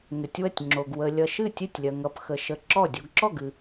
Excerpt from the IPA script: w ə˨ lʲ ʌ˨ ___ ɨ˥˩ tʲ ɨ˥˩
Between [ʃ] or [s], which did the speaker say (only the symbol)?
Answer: ʃ